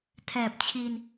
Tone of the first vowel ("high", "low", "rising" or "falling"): low